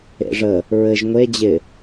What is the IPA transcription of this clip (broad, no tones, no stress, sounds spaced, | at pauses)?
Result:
ḛ ʐ ə | ɹ ɘ ʒ ŋʷ e d͡ʑ ɪ